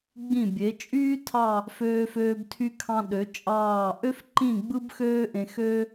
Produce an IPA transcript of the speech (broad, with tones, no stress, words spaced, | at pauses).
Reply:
ɡ͡bĩ˧˩bʲe˩˧t͡ʃʼyː˥ tʰɑ˥˧ | føː˧føː˧b tʰy˧kʰɑ̃˧ɗø˩˧ t͡ʃʼɑː˥˧ ʔø˥f ǃĩ˥˧ɡ͡bɯ˥bxøː˥ ʔẽ˧xø˥